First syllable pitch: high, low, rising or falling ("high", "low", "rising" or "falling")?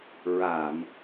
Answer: low